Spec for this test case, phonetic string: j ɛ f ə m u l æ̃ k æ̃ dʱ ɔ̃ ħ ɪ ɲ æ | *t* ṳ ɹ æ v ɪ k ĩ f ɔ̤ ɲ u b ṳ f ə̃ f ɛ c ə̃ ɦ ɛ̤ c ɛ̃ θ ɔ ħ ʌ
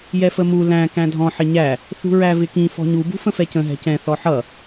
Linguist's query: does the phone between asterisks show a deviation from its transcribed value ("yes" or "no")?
yes